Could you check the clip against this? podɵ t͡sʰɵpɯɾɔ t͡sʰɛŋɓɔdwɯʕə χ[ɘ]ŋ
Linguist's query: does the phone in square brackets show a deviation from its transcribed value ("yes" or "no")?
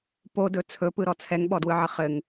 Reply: no